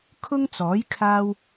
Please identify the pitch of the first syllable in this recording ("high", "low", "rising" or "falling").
high